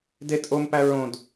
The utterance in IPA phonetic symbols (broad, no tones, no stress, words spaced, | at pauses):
de tʼompæ ɹõd